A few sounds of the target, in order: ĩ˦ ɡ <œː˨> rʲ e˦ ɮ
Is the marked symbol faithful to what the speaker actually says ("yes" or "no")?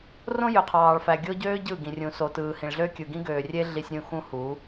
no